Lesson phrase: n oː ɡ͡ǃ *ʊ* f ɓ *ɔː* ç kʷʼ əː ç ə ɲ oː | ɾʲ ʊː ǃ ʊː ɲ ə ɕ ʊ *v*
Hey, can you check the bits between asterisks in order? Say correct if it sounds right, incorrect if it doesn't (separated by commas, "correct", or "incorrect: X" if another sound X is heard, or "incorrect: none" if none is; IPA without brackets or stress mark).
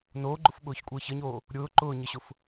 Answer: correct, incorrect: ʊː, incorrect: f